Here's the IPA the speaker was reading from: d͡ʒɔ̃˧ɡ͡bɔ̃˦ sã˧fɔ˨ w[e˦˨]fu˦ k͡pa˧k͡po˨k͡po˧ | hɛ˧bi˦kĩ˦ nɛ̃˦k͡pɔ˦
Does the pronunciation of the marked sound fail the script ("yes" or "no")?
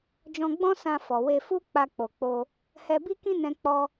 yes